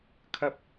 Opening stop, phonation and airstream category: aspirated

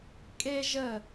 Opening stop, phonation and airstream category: ejective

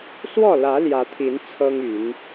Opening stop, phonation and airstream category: aspirated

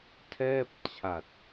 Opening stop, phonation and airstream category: aspirated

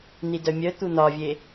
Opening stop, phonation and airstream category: plain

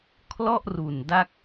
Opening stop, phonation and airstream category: aspirated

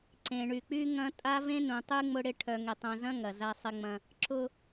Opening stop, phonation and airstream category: click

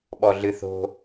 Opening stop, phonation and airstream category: implosive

